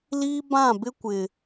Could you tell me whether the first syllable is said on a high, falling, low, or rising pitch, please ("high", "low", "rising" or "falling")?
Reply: high